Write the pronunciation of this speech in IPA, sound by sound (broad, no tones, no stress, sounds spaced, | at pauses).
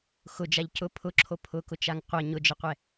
x ʊ d͡ʒ a ʎ c ʊ pʰ ʊ ǁʰ o pʰ ʊ k ʊ t͡ʃ a ŋ qʷ ʌ ɲ ʊ d͡ʒ ə qʷ ɛ